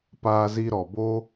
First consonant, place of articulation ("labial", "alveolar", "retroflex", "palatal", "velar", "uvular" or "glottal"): labial